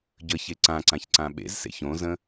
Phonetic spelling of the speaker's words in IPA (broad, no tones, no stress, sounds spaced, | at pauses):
ɟ ə ç e ǀ ã ǀ ã ç ǀ ã ɓ ḛ z s ḛ ç õ z ə̃